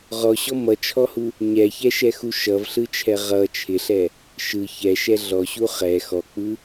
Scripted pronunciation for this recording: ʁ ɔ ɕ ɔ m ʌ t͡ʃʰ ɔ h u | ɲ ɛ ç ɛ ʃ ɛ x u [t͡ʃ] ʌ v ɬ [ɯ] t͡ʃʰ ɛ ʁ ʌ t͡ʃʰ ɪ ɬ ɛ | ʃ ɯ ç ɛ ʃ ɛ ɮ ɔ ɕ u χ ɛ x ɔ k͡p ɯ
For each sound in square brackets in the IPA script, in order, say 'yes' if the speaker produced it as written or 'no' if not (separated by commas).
no, yes